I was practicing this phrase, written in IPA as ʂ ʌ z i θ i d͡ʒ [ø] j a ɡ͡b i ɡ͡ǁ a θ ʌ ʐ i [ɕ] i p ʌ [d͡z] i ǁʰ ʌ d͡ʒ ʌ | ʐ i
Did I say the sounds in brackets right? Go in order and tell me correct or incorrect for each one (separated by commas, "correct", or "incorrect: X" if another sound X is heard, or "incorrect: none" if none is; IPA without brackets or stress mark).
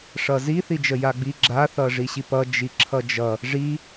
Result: incorrect: ə, correct, incorrect: d͡ʒ